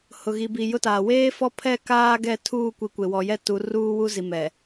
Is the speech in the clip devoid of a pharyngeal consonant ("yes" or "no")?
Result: yes